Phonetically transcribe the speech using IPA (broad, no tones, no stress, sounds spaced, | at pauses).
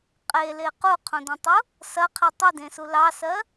qʼ e l e q u qʰ õ d ɐ̃ tˤ u | s ɐ qʰ e tˤ i d ẽ s u l ɑ s ɜ